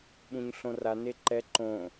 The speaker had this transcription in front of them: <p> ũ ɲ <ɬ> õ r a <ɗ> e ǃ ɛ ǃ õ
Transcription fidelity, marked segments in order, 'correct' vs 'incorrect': incorrect, correct, incorrect

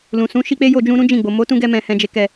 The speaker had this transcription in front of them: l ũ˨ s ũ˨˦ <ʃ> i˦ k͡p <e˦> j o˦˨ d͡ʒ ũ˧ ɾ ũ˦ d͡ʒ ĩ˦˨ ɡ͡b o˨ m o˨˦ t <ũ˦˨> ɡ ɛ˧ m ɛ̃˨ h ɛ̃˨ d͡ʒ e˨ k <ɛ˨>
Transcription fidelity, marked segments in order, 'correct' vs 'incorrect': correct, correct, incorrect, correct

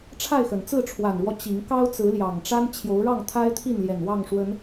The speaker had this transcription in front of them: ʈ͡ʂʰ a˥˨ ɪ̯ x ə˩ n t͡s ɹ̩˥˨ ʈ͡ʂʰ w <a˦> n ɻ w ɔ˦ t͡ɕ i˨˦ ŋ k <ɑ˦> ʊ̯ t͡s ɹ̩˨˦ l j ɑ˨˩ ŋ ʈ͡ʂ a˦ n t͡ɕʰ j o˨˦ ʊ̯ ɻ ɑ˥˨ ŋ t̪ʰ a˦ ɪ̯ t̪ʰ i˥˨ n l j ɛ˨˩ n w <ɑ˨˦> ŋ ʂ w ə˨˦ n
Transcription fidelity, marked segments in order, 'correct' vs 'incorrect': incorrect, correct, incorrect

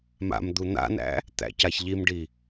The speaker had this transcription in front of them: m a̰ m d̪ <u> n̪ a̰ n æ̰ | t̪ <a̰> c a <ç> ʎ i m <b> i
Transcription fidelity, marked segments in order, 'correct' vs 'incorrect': correct, incorrect, correct, incorrect

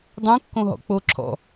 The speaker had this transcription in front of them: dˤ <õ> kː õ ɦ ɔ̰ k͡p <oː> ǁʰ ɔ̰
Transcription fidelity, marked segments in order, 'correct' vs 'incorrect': incorrect, correct

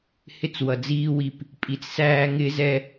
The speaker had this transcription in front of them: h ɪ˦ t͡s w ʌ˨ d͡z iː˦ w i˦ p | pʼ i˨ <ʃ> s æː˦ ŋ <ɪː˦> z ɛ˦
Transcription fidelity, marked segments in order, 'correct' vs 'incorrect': incorrect, correct

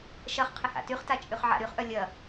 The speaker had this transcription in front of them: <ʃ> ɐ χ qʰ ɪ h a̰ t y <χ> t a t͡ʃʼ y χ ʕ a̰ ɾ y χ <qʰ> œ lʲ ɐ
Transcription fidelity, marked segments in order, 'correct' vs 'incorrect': correct, correct, incorrect

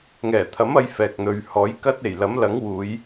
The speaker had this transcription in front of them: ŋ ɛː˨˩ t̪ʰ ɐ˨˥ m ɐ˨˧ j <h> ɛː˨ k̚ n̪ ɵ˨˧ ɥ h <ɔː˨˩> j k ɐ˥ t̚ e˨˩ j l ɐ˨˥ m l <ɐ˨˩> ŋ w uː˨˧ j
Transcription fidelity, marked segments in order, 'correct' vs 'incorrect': incorrect, incorrect, incorrect

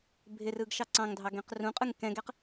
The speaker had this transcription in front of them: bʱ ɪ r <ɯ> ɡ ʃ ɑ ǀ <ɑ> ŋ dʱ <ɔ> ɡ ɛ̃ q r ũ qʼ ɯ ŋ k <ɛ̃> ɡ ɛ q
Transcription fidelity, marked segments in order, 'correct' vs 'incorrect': correct, incorrect, incorrect, correct

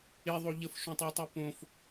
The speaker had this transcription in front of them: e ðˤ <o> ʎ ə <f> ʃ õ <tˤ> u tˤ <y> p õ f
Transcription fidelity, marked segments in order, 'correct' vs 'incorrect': correct, correct, correct, correct

